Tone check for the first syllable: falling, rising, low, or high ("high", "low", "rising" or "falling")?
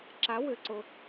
rising